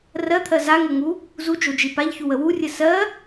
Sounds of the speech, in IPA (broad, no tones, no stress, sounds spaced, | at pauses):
r ɜ t̪ʰ ɜ z a ŋ o ŋ u | z u d͡ʒ o d͡ʒ i p a ʎ ç u w ə w u rʲ ɘ s ɜ